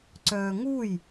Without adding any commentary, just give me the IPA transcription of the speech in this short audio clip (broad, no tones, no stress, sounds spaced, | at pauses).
ǀ œː ŋ u j